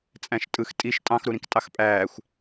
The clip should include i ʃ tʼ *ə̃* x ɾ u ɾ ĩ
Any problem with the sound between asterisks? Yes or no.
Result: yes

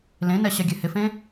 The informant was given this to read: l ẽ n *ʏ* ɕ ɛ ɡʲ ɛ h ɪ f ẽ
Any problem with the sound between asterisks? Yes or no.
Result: yes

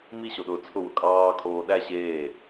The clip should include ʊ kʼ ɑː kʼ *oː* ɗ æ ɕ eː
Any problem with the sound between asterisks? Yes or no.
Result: no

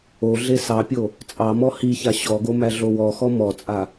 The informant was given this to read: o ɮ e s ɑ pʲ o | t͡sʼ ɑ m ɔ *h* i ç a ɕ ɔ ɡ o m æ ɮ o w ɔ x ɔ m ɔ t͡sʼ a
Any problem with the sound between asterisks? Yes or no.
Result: no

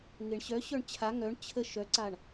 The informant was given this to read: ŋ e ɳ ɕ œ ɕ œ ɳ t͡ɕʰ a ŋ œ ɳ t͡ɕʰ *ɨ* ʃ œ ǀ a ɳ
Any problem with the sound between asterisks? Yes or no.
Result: yes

